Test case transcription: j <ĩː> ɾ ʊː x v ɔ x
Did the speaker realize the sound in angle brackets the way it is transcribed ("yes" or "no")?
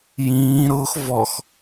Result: yes